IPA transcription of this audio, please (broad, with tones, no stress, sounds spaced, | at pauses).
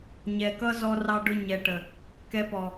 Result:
ɲ ɛ˨ k ʌ˦ z ɔ˧ r ɑ˧ ɖ ʊ˧ ɲ ɛ˨ ʈ ə˨ | k ɛ˧ p ɔ˨